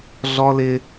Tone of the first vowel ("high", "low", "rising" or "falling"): high